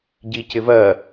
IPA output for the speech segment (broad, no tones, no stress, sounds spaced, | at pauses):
ɟ i c ɪ v ɜ